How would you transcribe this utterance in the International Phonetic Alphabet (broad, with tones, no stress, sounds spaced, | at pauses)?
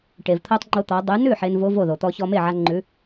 ʈ e˩ v t̪ʰ o˧ tˤ ŋ͡ǃ o˧ t̪ ɔ˩˧ dˤ ʉ˩˧ n ʉ˥˩ ħ e˧ n v o˦˥ v o˥˩ ð o˩ t̪ ɔ˧ ç ɔ˧ m e˥˩ ʕ a˧ ŋ͡ǃ ʉ˩˥